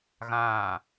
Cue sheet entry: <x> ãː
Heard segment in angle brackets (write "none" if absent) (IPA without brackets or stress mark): ɣ